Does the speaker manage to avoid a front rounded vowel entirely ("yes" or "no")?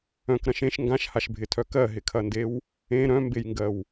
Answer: no